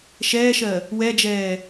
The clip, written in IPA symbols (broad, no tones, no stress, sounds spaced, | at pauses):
ʃ ɛː ʃ ɜ | w ɛ d͡ʒ ɛː